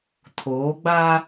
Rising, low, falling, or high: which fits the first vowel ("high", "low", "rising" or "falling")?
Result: rising